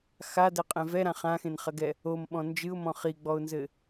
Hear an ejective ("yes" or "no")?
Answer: yes